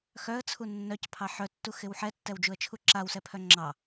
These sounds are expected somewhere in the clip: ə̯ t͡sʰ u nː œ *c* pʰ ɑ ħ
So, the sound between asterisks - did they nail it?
yes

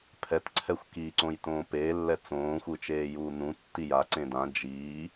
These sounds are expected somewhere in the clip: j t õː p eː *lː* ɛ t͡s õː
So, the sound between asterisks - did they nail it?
yes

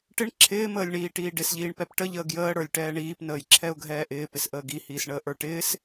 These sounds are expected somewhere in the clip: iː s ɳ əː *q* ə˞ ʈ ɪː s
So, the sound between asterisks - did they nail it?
no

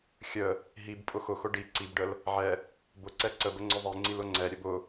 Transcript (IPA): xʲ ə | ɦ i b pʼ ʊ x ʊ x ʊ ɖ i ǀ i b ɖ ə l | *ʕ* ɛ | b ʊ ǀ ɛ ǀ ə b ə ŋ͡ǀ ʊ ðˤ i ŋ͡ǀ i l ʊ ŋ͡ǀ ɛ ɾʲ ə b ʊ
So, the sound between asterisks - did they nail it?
yes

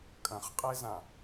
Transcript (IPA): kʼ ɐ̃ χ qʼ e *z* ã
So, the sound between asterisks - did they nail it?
yes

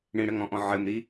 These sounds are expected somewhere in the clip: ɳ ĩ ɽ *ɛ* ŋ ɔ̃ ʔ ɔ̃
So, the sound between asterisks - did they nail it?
no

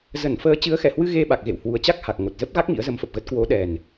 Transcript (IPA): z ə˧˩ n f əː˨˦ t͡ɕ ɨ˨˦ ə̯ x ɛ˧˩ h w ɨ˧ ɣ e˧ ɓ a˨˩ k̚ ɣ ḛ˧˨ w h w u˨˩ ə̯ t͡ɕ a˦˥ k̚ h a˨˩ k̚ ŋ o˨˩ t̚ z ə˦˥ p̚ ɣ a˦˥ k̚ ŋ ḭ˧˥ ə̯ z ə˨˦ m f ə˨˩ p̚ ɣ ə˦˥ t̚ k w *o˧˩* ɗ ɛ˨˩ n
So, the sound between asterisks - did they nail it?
no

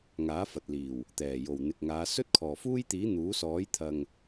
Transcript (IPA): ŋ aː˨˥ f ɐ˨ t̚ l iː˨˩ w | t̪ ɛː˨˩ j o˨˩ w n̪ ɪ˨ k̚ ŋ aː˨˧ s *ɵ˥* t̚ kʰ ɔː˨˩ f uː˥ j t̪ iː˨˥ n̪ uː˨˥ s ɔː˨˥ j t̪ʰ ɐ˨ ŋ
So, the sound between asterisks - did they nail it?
yes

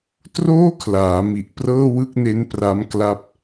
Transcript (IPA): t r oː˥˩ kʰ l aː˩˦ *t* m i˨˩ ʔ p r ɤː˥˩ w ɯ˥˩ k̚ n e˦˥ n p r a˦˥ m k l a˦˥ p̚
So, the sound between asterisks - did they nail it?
no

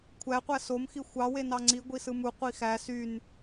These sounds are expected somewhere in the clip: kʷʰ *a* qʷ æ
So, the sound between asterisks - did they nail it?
no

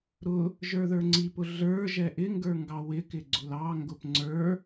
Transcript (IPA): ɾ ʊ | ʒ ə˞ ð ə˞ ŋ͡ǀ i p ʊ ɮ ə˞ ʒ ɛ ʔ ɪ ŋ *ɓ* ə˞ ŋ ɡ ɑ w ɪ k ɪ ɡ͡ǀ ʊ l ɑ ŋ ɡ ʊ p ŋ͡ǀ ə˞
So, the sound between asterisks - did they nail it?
no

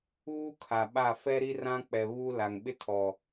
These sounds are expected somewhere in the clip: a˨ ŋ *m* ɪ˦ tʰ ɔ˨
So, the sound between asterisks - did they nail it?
no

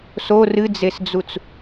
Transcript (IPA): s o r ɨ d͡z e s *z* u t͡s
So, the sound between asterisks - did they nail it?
no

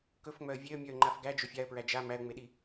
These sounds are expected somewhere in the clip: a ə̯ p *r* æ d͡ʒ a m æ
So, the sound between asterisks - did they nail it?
no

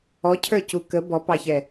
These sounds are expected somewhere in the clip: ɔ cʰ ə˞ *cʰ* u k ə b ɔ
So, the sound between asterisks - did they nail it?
no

